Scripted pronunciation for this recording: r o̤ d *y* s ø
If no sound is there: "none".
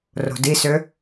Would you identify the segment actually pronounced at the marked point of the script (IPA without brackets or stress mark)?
i